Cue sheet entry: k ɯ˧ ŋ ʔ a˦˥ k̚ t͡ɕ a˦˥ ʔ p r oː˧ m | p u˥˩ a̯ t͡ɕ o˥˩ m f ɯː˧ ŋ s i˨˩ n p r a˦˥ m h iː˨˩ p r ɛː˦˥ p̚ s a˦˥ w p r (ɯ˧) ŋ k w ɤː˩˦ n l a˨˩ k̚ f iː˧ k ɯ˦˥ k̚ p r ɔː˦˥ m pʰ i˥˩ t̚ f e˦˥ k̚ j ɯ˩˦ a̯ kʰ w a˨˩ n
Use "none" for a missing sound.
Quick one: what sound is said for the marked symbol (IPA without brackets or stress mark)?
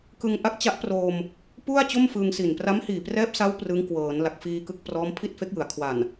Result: ɯ˦˥